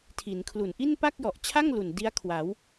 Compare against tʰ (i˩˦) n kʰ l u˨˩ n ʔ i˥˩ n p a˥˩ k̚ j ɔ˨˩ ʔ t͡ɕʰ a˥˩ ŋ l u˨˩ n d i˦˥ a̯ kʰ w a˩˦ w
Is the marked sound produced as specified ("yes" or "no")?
yes